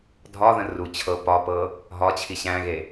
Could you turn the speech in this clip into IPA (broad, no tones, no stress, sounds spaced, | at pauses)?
dʱ ɒ ð ə̃ r u t͡ɕʰ ɤ p ɒ p ɤ | ɦ ɒ t͡ɕʰ i ɕ æ̃ ɣ e